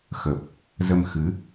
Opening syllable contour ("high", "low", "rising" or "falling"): low